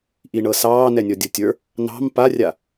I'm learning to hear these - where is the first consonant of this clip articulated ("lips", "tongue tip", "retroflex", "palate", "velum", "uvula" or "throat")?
throat